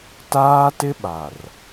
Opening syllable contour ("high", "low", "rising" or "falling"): high